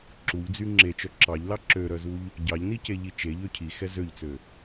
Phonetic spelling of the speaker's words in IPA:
ǁ u ʎ d͡z y ŋ͡ǁ e t͡ʃ œ ǁ ɑ ʎ l ɑ ǁ ø ɾ œ z u ʎ | ɟ ɑ ʎ n i c e ʎ i t͡ʃ e ʎ ø cʰ i x ɛ z ø ʎ t͡s ø

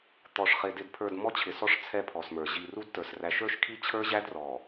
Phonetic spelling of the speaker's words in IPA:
t̪ ɔ˨ ʂ χ ɪ˨ d ɪ˨ d pʰ ə˞˨ d m ɔ˦ t͡ɕʰ ɪ˨ s ɔ˦ ʂ t͡sʰ ɛ˦˨ pʰ ɔ˨ s m ə˞˨ ʑ i˨ r u˦ d t ə˞˨ s r æ˦ ʃ ə˞˦ ʃ kʰ i˦ t͡ɕʰ ə˞˦ ʑ æ˦ d r ɔ˨

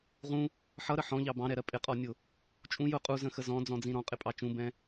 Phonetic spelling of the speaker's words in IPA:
ʁ ũ | ħ ʌ ɾ ə ħ ɔ̃ ʎ ɑ b ɑ̃ ɾ ɛ ɾ ɜ pʼ ɪ qʼ ɔ nʲ ʊ | t͡ʃʼ ũ j ʊ qʼ u z ə̃ x ə z ɔ̃ d͡z ɔ̃ d͡z ĩ ɾ ɔ̃ qʼ ɪ pʼ ɑ t͡ʃ ũ b ɛ̃

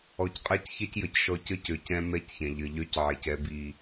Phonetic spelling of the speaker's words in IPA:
ɔ˨ c qʼ a˦ c ç ɛ˦ c j ə˨ c ʃ ɔ˦ c ə˦ c ø˨ c ɛ̃˦ m ɛ˦ c ç ɛ̃˨ ʎ ə˨ ʎ œ˦ c ʕ e˨ c ɛ˦ b i˦

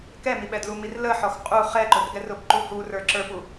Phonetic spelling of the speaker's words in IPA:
k ɛ m i ɓ ɛ d l u m i r l ə ħ ɔ x qʼ u χ ɛ ǃ ʊ r ɡ ɛ r ʊ b ǃ u h u r ə˞ ǁ ə˞ p u

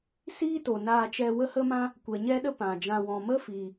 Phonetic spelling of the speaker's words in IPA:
s iː˦ t o˨ n aː˧ t͡ʃ ɛ˧ w ə˦ h ə˦ m ã˦ | kʷ ɛ˨ ɲ ɛ˦ ɗ ə˦ p ã˨ d͡ʒ ã˧ w ɔ̃˧ m ə˦ f iː˨

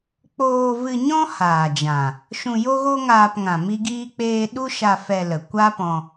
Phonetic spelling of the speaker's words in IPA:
k͡p oː˧ v ɨ˧ ɲ ɔ̃˦ h aː˨ d͡ʒ ã˨ | ʃ ũ˧ j o˦ ɣ o˦ ŋ aː˧ p ŋ ã˨ m i˦ ɡ iː˦ k͡p eː˦ ɗ u˦ ʃ a˧ f ɛ˧ l ə˨ kʷ a˦ p ɔ̃˧

